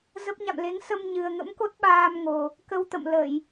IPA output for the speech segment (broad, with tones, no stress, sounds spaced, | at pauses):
z ə˦˥ p̚ ɲ a̰˧˨ m l e˨˦ ŋ s ə˧ m ɲ ɨ˨˩ ə̯ ŋ ə̰˧˥ m k o˦˥ t̚ ɓ aː˧ m ŋ o˨˩ | k ə˧ w t̪ ə̰˧˨ m l ə˧˩˨ j